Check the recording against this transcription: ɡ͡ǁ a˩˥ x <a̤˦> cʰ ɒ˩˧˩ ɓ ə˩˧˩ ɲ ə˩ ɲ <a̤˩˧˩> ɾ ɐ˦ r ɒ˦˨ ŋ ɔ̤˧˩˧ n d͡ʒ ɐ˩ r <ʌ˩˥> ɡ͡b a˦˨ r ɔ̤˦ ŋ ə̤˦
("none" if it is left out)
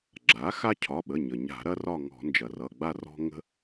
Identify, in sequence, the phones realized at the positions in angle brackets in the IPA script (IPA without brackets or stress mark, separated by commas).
a˦, a̤˧˩˧, ʌ˩˧˩